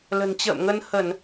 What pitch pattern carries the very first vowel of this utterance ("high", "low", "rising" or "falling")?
low